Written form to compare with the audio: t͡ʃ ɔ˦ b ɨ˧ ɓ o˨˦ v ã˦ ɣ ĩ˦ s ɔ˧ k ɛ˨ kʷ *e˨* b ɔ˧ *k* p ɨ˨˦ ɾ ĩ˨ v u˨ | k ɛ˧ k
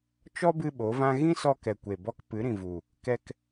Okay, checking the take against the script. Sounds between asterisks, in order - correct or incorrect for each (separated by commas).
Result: correct, correct